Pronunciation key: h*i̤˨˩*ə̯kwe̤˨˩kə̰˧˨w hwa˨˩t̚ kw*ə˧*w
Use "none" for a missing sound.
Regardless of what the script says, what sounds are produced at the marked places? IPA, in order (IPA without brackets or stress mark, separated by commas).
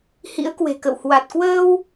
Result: ḭ˧˥, əː˧